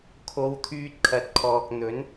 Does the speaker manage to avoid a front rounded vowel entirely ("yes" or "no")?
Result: no